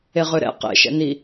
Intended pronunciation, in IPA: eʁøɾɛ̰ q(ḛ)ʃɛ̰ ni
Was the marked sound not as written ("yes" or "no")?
no